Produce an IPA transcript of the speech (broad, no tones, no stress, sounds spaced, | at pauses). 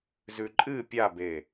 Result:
z ʉ ǃʼ ɨ pʲ a b e